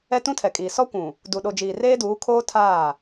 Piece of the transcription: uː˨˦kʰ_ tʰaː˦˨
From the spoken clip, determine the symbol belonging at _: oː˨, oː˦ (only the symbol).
oː˦